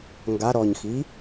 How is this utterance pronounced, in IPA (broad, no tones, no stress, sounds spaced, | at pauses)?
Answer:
ŋ ɡ a ɾ ɔ ɲ x i